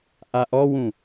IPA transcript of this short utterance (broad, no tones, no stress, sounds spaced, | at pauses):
ʔ a ʔ ɔ w ũ